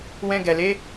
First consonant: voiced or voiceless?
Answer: voiced